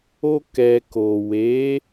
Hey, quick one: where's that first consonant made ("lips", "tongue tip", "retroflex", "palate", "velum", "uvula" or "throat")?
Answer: velum